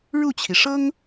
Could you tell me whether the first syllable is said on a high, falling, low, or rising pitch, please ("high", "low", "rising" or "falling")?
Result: falling